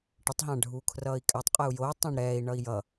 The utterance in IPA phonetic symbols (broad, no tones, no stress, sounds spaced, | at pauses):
ʈ ə tˤ ɦ ã ɖʱ uː kʰ r ʌː i̯ kʼ a tˤ qʼ ɛ u̯ j o tˤ ã ɳ ɾ ɛː i̯ ɳ ʌ i̯ j ʌ